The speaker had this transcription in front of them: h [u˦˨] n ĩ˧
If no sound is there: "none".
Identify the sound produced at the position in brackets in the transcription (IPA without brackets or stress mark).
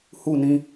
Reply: u˦˨